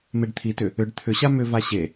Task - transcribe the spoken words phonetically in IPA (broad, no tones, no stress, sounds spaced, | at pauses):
m e ɖ t̪ʰ i t ʏ | ʏ ɖ t̪ʰ ʏ ɕ a m ʏ v a ɕ e